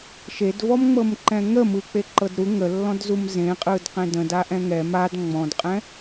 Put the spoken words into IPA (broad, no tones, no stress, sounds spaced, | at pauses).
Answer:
ʃ e d v ɔ m ŋ͡m ɤ m ǃ ɛ̃ ŋ ə m ɯ k͡p e ǃ ɤ d ɾ u ŋ ə lː ɔ̃ d z u m z ẽ qʼ ɯ d q ẽ d ə̃ d a ʔ ɛ̃ ŋ ɛ m a d ŋ͡m ɔ̃ d qʼ ɛ̃